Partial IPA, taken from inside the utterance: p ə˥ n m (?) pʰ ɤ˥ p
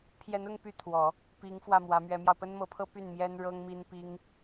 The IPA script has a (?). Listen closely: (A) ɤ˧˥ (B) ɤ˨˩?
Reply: A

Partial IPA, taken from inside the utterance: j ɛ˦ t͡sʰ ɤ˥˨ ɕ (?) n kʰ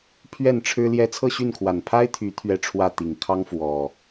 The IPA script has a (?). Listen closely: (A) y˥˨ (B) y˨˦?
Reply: A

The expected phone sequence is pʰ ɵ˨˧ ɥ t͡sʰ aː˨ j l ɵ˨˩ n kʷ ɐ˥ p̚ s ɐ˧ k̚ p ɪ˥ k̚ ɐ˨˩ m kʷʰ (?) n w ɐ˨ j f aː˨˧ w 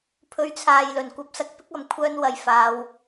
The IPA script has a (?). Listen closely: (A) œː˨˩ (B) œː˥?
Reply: B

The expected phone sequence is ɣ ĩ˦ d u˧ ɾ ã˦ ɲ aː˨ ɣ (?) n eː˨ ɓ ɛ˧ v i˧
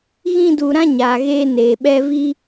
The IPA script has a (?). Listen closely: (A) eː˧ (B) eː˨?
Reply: A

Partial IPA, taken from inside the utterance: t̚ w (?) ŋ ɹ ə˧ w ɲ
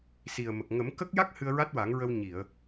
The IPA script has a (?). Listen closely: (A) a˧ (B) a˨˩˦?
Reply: B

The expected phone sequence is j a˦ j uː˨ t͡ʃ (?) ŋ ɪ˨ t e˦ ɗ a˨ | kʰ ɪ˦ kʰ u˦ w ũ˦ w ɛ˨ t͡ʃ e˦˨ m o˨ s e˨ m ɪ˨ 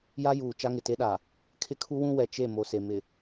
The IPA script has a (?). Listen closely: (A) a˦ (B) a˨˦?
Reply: A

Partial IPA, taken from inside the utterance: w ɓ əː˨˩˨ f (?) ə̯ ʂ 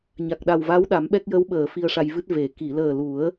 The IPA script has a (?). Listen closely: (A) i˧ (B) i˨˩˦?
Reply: A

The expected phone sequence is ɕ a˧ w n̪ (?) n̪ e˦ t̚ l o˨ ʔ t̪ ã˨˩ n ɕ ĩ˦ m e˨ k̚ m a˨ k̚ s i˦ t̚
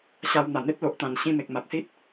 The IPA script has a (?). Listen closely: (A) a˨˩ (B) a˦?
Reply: A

